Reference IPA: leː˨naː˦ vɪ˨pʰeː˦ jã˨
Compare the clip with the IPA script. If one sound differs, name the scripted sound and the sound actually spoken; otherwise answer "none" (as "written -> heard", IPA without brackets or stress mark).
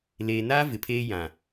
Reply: none